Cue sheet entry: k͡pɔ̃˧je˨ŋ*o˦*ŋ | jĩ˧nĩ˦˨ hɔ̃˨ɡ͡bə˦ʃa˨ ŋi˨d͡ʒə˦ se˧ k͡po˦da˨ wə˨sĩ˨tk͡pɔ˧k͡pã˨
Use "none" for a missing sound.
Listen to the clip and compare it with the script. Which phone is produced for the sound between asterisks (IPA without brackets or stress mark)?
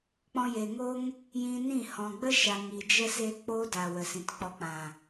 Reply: o˦